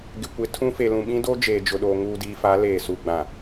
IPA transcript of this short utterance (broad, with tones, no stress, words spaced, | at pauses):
ɡɪ˨kʷɪ˨˦ tʰũ˦fe˨lũ˨ ɓĩ˦doː˦ d͡ʒeː˨d͡ʒʊ˨ɗoː˨ ŋuː˨diː˨fa˨˦ leː˨su˨ɡ͡bã˨